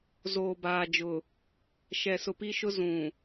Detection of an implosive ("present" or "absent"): absent